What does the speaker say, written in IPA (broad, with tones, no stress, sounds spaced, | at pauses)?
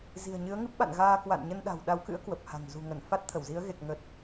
z i̤˨˩ ə̯ ɲ ɨ˨˦ ə̯ ŋ ɨ˦˥ p̚ ɓ a̰˧˨ n ɣ aː˧ k w a̰˧˨ n ɲ ə˧ n ɗ a̤˨˩ w ɗ a˨˦ w k ɨ̰˧˥ ə̯ k w ə˨˩ p̚ h a̤˨˩ ŋ z ṳ˨˩ ŋ ə˧˩ n f a˦˥ t̚ t̪ʰ ə˧˩ w z i˨˦ ə̯ ɣ e˨˩ k̚ ŋ ə˨˩ t̚